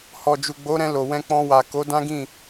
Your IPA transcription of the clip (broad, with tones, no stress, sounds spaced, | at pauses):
h ɔ˨ d͡ʒ u˨ ɡ͡b o˨˦ ɾ ɛ̃˧ l o˨ w ɛ̃˧ k͡p ɔ̃˧ w a˨ k o˨˦ d ã˦ ɡ ĩ˦˨